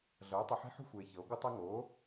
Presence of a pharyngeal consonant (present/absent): present